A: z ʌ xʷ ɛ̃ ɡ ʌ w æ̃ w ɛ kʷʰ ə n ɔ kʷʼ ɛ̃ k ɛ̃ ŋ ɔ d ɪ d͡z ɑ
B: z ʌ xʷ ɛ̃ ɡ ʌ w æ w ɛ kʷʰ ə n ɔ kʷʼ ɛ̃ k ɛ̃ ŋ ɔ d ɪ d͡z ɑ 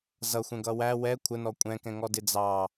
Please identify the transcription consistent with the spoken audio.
B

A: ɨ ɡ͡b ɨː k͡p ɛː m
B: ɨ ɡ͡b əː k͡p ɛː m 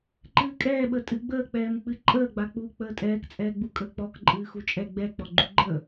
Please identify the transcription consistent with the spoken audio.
B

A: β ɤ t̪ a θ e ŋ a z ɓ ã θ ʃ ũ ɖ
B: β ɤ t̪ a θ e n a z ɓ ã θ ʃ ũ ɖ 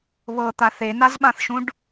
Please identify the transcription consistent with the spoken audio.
B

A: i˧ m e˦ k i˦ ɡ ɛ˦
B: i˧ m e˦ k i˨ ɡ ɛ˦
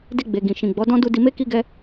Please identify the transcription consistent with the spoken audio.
A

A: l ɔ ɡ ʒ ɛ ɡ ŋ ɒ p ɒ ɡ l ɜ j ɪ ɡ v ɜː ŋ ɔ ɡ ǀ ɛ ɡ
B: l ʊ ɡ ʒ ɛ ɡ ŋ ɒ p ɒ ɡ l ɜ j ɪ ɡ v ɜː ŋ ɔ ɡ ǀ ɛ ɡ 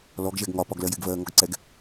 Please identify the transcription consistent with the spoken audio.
A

